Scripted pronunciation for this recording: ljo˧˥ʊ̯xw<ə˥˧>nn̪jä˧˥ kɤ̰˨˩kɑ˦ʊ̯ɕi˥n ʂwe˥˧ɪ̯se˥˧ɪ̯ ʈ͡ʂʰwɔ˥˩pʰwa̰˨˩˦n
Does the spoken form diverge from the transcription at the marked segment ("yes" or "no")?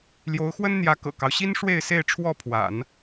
yes